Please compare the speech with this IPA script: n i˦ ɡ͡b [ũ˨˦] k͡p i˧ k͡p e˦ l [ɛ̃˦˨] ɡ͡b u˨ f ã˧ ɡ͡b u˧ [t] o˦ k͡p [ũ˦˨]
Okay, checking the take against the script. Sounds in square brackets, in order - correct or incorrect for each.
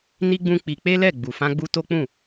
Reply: incorrect: ũ˦, incorrect: ɛ˦˨, correct, correct

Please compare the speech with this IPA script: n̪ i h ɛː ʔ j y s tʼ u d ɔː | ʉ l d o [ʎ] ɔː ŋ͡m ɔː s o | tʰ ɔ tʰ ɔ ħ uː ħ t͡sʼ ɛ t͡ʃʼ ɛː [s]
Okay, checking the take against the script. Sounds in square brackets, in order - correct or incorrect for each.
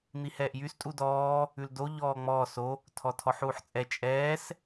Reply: correct, correct

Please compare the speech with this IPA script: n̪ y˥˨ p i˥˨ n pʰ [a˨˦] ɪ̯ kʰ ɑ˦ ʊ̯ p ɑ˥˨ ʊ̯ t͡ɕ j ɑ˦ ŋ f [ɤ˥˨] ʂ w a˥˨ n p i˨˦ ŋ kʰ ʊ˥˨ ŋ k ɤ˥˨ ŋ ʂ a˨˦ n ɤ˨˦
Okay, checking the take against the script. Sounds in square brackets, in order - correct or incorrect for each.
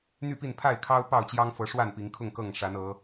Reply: incorrect: a˥˨, incorrect: ɤ˨˦

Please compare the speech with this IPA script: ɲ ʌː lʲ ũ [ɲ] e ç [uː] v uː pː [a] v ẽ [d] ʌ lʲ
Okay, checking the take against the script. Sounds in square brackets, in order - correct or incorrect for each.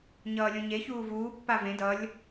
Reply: correct, correct, correct, correct

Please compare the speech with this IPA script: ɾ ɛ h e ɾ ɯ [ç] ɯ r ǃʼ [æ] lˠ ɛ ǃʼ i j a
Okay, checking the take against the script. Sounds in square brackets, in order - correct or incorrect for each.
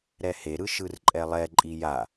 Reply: incorrect: ʃ, incorrect: ɛ

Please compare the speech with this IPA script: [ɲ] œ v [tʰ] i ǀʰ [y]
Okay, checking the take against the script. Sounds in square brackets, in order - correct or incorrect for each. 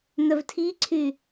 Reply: incorrect: n̪, correct, correct

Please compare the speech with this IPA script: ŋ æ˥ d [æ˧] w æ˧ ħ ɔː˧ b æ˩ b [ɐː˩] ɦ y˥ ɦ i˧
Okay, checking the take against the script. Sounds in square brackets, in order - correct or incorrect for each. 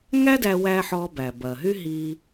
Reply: correct, correct

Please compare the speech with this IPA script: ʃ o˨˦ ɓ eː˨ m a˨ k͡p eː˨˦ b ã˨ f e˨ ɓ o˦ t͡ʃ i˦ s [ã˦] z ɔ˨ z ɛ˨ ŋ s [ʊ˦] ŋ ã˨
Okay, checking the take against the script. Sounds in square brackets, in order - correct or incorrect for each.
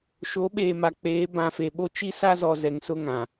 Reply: incorrect: a˦, correct

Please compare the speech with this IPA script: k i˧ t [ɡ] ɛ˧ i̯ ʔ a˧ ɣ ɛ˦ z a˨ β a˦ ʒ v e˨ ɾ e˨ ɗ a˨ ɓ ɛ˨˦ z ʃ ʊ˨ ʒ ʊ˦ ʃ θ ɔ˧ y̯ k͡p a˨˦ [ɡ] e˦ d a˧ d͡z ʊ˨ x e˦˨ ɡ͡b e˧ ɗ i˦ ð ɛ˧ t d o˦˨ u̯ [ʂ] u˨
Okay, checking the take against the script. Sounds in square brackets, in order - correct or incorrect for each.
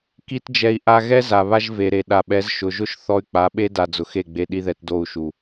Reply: incorrect: d͡ʒ, incorrect: ɓ, incorrect: ʃ

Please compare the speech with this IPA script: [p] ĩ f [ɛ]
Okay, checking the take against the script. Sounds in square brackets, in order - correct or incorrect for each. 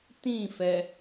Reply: incorrect: t, correct

